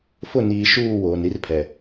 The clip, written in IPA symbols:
f ʊ˦˨ n iː˨ ʃ uː˦˨ w oː˨ n ɾ i˦ r pʰ ɛ˨

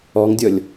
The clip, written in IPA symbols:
ɔ ŋ dʲ ɔ lʲ

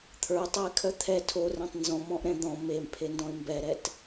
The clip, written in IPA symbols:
t̪ʰ ə˞ tˤ a ɪ̯ kʰ œ t̪ʰ ɛ tʰ o r ɛ̃ tˤ n z ɔ̃ m ɔ̃ ʔ ɾ ɛ̃ d̪ ɔ̃ m e m pʰ e n d ɔ̃ ɪ̯ m b ɛ ɾ ɛ t

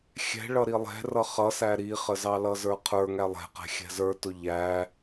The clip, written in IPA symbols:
xʲ ɛ̤ ɭ ʌ ɾ i lˠ ɛ̤ r ʌ χ ʌ s æ ɾ i χ ə z ɑ l ʌ z ə˞ qʰ ə˞ ŋ æ lˠ ɛ̤ q ɛ̤ xʲ ɛ̤ z ə˞ t ʊ ʎ æ

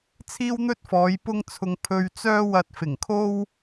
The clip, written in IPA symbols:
t͡sʰ iː˥ w n̪ ɵ˥ t̚ f ɔː˨˧ j p ʊ˥ ŋ t͡sʰ ʊ˧ ŋ pʰ ɵ˧ ɥ t͡s œː˥ w ɐ˧ t̚ f ɪ˨˩ ŋ kʰ o˥ w

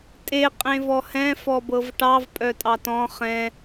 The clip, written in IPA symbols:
tʼ e qʼ ẽ v ɔ h ɛ̃ f ɔ b ɤ v ʈ ɑ v pʼ œ tʼ ɑ t ɔ̃ χ ɛ̃

